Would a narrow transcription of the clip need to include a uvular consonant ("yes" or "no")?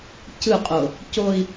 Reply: yes